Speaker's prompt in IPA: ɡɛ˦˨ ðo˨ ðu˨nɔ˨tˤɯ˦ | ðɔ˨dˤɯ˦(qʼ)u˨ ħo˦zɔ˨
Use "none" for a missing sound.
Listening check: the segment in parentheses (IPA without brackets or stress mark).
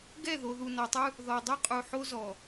qʼ